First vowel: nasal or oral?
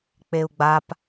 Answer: oral